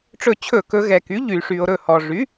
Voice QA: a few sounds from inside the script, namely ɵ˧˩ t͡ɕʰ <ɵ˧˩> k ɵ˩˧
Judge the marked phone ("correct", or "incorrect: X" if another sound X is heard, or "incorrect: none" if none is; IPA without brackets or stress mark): incorrect: ɵ˧˩˧